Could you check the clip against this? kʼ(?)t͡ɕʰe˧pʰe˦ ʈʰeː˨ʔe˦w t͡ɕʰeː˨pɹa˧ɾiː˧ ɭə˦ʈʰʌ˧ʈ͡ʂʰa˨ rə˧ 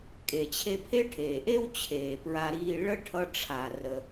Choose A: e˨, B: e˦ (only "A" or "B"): A